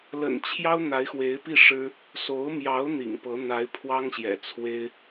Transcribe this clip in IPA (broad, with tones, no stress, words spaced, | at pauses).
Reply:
lə̰˨˩nt͡ɕʰjɑ˥ʊ̯ n̪a˧˥ɪ̯xwe˧˥ɪ̯pi˥˩ʂɻ̩˥ | so˧˥ʊ̯mjɑ˧˥ʊ̯ n̪ḭ˨˩ŋpɤ˧˥ n̪a˧˥ɪ̯pʰwɑ˥ŋɕjɛ̰˨˩ t͡sʰwe˥ɪ̯